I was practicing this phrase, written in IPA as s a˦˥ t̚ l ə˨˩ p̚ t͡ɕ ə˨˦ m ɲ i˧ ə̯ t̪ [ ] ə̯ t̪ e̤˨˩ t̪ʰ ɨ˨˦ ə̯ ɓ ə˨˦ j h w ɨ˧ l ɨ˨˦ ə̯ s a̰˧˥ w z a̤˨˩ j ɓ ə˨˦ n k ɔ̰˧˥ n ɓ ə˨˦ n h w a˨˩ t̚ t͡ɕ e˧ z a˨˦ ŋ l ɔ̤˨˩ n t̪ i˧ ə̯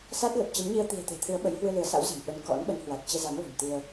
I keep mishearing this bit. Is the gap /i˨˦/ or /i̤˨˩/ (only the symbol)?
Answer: i̤˨˩